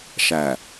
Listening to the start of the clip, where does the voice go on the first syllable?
low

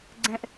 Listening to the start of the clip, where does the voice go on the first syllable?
high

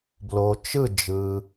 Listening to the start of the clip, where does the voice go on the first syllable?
low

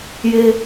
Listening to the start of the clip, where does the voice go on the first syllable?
high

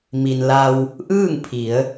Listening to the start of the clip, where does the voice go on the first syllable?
low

